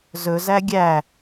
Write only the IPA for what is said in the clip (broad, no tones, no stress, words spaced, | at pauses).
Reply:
zɵzæ ɡʲæ